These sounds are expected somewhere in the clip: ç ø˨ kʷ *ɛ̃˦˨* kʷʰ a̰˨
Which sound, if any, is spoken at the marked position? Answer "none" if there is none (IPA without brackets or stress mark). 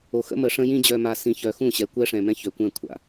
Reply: ɛ̃˦˨